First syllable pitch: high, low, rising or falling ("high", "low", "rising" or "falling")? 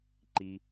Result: low